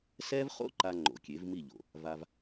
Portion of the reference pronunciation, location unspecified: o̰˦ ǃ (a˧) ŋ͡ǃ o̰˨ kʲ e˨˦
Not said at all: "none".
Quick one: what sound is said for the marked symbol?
a˧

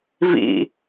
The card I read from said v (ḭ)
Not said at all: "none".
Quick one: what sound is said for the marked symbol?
ḭ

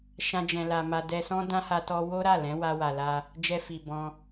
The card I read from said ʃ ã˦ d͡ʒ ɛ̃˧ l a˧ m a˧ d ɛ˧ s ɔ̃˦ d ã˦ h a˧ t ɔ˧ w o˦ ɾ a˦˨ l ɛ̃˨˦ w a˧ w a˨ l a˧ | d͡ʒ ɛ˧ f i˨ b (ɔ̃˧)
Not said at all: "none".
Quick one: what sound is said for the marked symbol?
ɔ̃˧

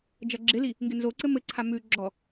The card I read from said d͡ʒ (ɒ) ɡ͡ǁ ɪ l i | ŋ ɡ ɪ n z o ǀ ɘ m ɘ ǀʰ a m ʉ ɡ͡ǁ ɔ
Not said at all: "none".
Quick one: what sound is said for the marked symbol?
ʌ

